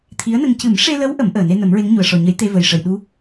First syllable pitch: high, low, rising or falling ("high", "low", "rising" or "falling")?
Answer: rising